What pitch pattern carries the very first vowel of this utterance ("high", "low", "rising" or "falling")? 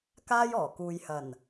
high